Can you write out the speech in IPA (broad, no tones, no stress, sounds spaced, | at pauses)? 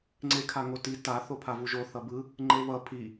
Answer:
ŋ͡ǀ e kʰ a ŋ o t i t a θ o pʰ a v u ʒ o θ ʌ b ɯ | ŋ͡ǃ e β ʌ pʰ i